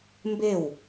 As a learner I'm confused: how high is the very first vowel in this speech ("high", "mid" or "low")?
mid